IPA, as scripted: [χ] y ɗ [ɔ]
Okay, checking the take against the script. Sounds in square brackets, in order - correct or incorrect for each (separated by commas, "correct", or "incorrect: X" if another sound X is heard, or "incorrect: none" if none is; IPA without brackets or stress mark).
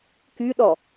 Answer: incorrect: k, correct